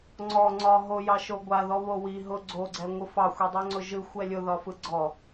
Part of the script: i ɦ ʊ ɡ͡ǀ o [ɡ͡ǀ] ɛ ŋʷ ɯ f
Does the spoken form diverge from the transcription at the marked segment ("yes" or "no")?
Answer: no